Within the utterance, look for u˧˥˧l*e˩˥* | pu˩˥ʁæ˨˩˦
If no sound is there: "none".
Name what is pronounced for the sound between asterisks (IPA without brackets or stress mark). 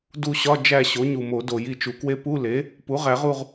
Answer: e˩˥